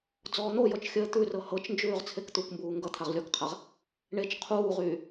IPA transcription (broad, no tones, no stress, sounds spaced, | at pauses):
d͡z ɔː n̪ o j ɔ t͡ʃ xʲ əː t̪ ʉ r ɤ h ɤ t͡ʃ n d͡ʒ ʉː ʁ t͡sʰ e k t̪ u k m b uː ŋ ɡ ʌ t̪ʰ a ʁ lʲ ɔ k qʰ a ʁ | ɳ e t͡ʃ qʰ uː ʁ yː